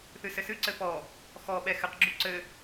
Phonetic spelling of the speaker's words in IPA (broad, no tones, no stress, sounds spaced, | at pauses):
θ ɨ s ɘ s ɨ ǀ ɘ p ɔ | x ɔ ɓ ɛ x ɘ q ɡ͡ǁ u ǀ ɘ